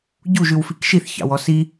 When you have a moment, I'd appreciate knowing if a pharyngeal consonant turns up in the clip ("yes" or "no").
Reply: no